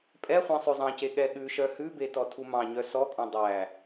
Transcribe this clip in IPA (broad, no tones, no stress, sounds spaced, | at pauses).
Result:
pʼ ɛ χʷ ẽ sˤ ø zˤ ɑ̃ c e ɠ ɛ ɠ ʉ ʃ œ h ʉ b e t ɔ tʰ u m ɑ̃ ɲ œ s ɔ kʼ ɔ̃ dˤ æ